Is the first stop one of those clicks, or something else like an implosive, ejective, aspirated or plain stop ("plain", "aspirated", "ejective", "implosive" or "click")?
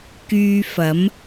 plain